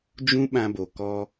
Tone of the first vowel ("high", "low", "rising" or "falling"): high